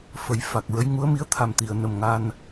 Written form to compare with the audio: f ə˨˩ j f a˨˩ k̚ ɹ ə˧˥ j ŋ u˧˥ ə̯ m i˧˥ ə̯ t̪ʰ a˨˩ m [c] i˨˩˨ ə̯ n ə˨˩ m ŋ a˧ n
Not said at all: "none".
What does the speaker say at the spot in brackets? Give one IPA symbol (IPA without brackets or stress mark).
t̪